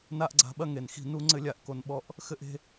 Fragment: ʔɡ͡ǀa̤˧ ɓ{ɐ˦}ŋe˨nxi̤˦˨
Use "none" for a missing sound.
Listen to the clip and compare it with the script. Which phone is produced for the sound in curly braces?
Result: ɐ˦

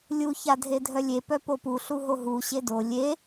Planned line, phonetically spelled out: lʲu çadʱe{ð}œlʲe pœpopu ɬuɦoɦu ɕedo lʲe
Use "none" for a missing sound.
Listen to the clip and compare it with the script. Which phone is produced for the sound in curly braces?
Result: dʱ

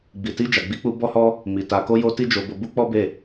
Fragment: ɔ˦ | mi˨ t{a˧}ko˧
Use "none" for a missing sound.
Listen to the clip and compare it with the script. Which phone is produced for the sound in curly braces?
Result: a˨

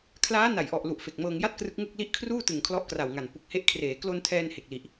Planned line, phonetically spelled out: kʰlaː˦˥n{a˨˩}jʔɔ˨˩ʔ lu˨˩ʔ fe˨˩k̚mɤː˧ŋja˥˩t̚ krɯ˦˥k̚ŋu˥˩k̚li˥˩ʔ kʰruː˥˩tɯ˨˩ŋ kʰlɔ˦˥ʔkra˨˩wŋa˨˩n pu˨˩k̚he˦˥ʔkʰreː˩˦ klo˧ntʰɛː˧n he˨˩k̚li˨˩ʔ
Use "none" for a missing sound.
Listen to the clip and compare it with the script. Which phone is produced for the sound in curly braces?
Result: a˨˩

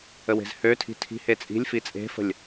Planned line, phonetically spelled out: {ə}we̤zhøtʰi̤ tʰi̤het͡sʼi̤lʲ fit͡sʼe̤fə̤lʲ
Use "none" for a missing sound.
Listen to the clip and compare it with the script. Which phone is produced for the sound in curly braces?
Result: ə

